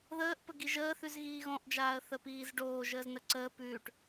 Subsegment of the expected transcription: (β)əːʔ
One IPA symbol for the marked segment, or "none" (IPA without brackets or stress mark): ð